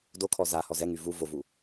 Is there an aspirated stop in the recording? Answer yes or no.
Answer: yes